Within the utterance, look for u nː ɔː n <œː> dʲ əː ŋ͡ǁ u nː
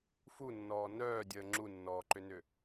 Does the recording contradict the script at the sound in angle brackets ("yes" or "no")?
no